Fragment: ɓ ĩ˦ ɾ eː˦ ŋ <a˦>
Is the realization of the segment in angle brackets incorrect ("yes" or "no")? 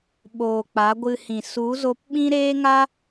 no